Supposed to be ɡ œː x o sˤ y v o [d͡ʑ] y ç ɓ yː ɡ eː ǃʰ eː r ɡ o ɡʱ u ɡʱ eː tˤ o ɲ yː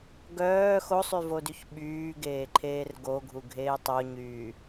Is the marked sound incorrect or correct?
incorrect